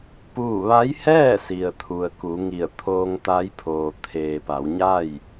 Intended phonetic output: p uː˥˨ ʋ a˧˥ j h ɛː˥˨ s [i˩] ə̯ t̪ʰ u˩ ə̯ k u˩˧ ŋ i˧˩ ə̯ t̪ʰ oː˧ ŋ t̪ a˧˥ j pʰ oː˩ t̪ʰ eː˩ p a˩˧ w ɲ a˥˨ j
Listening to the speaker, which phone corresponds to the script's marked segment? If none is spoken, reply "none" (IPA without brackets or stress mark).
i˩